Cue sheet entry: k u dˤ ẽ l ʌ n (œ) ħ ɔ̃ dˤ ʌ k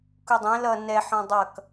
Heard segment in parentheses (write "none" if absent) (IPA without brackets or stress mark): ɛ